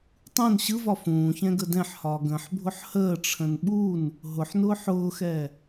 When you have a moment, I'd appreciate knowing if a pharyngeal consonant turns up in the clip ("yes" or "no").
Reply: yes